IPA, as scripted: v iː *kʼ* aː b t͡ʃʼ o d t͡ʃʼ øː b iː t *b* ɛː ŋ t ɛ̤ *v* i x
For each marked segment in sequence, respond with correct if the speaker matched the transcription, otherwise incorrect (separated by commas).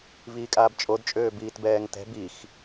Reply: correct, correct, incorrect